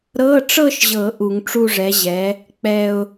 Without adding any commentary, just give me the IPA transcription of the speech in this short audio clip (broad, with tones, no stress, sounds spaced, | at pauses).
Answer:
ɾ ɤ˧˥˧ ʈ͡ʂ ɤ˥˧ ʃ ʑ ɤ˨˩˦ ʔ u˨˩˦ ŋ ʈ͡ʂ u˥˧ ʐ ɛ˩˥ ʑ ɛ˩˥ | k͡p ɛ˥˧ ʊ̯